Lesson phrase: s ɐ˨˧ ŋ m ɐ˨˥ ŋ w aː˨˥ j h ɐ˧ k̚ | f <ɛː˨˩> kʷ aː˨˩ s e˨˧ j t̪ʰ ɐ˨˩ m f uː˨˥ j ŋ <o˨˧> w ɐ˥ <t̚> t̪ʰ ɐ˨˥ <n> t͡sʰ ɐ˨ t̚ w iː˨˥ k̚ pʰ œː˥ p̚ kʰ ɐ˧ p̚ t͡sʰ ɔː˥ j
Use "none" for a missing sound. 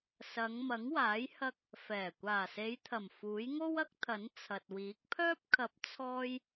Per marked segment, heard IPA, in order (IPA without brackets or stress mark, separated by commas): ɛː˨˩, o˥, k̚, n